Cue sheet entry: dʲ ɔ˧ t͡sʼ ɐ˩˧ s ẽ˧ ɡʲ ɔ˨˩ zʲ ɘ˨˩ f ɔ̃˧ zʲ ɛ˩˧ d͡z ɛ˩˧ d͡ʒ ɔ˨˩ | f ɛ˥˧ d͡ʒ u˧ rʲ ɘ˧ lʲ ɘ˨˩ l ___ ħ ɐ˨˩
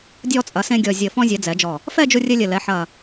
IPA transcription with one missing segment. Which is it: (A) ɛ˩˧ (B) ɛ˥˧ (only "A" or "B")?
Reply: A